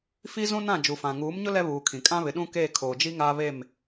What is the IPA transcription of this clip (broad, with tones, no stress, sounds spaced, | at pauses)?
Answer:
f i˦ z ũ˦ n ã˦˨ d͡ʒ u˨ f ã˨ ŋ uː˨˦ m ɲ ʊ˦ l ɛ˦ β uː˨ kʰ ĩ˨ kʼ ã˦ β ɪ˨ ɗ ũ˦ k eː˦˨ kʰ oː˨ d͡ʒ i˦ ŋ aː˦ β e˦˨ m